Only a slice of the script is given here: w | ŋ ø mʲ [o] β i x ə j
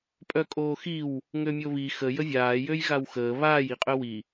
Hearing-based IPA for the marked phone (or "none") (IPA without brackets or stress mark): o